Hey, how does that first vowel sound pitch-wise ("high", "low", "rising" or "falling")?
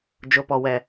rising